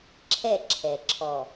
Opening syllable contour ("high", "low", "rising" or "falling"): falling